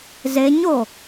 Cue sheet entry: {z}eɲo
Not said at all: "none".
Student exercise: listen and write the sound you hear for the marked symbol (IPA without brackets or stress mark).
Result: z